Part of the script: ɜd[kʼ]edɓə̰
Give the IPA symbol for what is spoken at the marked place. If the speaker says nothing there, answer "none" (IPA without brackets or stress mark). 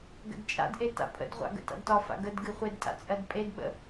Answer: pʼ